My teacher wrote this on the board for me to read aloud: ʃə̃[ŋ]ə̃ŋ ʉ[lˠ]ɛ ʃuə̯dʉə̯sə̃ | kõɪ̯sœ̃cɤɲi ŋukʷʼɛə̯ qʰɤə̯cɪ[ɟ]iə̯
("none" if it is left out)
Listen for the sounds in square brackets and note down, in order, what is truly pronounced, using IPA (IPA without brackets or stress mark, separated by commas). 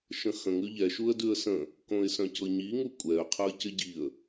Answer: x, ʎ, ɟ